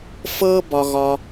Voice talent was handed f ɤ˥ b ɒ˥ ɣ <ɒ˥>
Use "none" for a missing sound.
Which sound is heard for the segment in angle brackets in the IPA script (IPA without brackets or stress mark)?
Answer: ɒ˥